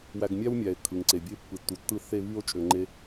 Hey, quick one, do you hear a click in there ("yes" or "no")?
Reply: yes